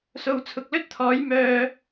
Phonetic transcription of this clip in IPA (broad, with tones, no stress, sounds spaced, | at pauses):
s o˨ w t͡sʰ ʊ˨ k̚ l ɵ˥ t̚ t̪ʰ ɔː˨˥ j m œː˧